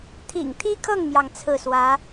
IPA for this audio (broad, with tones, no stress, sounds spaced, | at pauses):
t̪ʰ ḭ˨˩ ŋ t̪ʰ i˥ kʰ ɤ˥˩ ŋ m j ɑ˩ ŋ t͡sʰ ɹ̩˥˩ s w ä˧˥